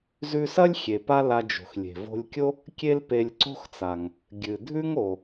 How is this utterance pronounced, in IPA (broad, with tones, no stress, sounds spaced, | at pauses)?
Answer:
z ʉ˧ s ɐ˥ lʲ xʲ e˩ p a˥ l a˧ d͡ʒ o̤˩ x lʲ e̤˩ v o̤˧ lʲ kʲ o˥ | kʲ e˥ l p e˧ lʲ ǀ o̤˥ x t͡s a˩ ŋ | ɡʲ ɨ˩ dʱ ʉ˥ ŋ o˩